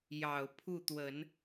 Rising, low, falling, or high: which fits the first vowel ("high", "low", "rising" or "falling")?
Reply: low